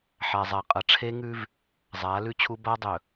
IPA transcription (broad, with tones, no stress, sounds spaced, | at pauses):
ħ a˨ zˤ a˨ qʼ ɐ˨ ʈ͡ʂʰ e˦ ŋ ʉ˦ v | zˤ aː˨˦ l ʉ˦ t͡ɕʰ u˦ b a˦ dˤ ɵ˨